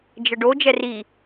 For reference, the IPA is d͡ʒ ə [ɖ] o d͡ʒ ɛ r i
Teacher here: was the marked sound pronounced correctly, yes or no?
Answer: yes